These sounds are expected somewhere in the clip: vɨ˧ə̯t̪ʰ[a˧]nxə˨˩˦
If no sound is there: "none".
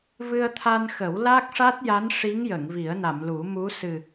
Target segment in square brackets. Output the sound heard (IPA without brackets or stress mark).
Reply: a˧